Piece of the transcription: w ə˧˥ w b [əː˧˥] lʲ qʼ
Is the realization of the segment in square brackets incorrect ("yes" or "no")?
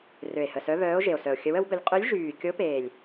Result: yes